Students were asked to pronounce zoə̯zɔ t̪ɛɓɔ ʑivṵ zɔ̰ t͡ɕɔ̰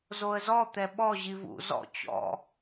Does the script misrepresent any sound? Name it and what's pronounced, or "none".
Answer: none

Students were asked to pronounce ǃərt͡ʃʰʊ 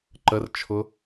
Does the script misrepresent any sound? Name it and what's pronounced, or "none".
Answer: none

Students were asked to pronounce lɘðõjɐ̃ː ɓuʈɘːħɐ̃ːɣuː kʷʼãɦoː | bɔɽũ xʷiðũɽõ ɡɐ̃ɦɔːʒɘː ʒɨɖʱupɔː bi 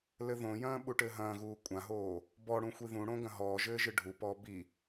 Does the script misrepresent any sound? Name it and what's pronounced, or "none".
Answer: ħ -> ɦ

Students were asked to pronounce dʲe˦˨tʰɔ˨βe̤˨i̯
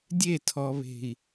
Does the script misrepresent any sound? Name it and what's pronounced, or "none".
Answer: none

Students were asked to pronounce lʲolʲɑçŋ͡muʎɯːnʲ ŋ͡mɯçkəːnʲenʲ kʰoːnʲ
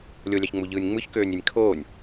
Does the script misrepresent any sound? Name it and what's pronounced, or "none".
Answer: əː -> øː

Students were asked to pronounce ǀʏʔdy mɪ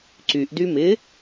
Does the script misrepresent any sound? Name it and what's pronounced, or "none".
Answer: ʏ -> y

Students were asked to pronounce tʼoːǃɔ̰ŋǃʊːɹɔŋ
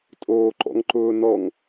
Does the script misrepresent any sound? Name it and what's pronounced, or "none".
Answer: ɹ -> n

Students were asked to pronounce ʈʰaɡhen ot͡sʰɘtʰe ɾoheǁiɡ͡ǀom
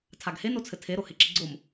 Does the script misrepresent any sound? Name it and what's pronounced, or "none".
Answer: ʈʰ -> tʰ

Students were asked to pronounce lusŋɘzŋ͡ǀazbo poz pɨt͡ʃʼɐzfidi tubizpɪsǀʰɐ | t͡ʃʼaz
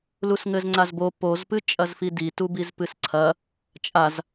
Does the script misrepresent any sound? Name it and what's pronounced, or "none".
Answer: ɪ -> ɨ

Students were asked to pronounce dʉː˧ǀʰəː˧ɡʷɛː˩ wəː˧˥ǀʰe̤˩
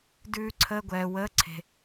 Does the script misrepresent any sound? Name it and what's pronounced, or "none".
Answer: none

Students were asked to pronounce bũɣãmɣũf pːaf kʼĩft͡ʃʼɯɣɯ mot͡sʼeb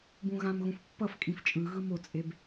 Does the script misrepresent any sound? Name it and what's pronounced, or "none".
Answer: a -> ʌ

